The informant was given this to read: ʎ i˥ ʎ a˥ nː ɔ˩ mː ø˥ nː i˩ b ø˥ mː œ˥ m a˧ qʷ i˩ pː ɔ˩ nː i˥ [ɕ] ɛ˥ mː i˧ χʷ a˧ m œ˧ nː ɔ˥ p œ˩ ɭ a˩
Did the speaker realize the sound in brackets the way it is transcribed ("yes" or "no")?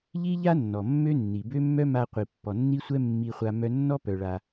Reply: no